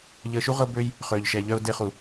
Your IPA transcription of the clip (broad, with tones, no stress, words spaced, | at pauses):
ʎəː˧ʃu˦ʁɤ˦bøː˦j | χøː˧ʎʃɛ˧ʎœ˦ʊ̯ de˦χu˧